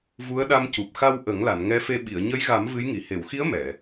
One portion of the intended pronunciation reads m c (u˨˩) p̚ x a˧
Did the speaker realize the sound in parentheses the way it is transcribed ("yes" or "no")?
yes